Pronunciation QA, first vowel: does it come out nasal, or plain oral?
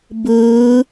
oral